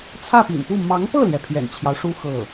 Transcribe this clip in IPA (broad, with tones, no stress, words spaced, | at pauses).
t͡sʰä˥˩pḭ˨˩npu˥˩ mɑ˧˥ŋpɤ˥˩ljɛ˩ pʰjɛ̰˨˩nt͡ɕʰjɑ˦ʊ̯ʂu˥ xɤ˥˩